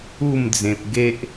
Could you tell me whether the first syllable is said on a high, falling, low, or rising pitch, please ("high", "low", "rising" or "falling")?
falling